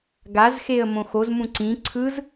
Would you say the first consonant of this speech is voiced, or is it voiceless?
voiced